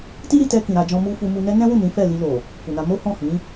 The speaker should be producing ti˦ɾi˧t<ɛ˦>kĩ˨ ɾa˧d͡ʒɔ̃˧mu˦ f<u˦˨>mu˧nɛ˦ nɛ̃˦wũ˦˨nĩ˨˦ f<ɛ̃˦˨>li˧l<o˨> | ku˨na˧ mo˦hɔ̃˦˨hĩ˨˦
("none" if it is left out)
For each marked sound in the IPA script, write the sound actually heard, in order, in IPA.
ɛ˧, u˧, ɛ˦˨, o˨

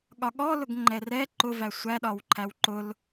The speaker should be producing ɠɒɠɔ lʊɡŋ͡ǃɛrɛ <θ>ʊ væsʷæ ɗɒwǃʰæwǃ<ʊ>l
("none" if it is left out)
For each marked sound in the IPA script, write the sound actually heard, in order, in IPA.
ǃ, ʊ

